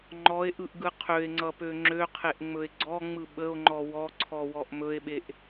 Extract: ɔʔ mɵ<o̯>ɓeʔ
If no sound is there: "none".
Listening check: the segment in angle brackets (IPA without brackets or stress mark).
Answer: e̯